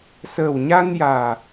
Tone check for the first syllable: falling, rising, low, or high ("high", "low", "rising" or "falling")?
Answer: low